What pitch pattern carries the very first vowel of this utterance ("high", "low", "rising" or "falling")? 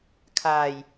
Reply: low